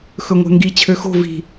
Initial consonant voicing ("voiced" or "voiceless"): voiceless